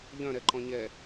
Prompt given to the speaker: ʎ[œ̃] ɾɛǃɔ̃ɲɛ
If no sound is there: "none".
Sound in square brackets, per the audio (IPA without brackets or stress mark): œ̃